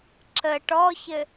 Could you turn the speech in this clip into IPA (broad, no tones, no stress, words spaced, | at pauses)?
ǁə ʈɔçɘ